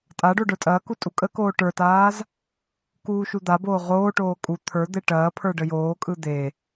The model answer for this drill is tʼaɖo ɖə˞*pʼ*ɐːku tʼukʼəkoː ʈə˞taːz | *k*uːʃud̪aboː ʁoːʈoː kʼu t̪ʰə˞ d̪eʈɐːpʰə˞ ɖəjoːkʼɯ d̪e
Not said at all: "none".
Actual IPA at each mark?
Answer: tʼ, k

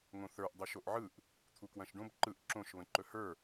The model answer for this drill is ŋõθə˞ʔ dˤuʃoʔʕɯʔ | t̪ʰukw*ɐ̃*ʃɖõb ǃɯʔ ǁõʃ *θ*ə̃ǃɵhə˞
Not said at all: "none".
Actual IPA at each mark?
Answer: ɐ̃, β

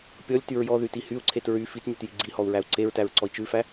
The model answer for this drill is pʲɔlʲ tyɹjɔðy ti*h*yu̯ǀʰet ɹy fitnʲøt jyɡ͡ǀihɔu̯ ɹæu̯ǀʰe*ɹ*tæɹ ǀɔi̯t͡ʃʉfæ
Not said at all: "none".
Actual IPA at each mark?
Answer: h, ɹ

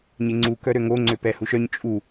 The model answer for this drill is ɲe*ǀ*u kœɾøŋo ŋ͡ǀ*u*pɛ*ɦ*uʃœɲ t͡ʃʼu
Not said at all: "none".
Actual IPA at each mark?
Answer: ŋ͡ǀ, ø, h

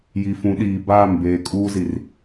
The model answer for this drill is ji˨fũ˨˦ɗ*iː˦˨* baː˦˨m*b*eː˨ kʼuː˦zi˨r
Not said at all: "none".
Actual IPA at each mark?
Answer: iː˨, b

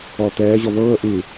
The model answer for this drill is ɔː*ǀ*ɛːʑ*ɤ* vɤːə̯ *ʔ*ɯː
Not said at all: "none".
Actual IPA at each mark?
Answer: t̪, ɔ, ʔ

